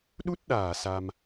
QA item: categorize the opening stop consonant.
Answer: implosive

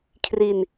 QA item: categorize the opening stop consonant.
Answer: aspirated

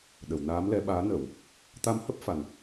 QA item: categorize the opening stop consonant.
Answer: implosive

